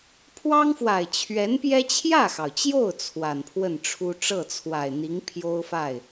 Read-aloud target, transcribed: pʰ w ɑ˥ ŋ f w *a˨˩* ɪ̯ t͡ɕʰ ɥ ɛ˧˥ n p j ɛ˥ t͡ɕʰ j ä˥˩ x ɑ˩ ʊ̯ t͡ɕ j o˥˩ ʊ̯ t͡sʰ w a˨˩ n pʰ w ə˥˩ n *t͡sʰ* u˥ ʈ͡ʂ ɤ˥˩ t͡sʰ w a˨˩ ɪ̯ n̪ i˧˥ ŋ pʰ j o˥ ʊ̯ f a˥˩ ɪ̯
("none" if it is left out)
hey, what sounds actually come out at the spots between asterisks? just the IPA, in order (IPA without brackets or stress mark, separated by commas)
a˨˩, ʈ͡ʂʰ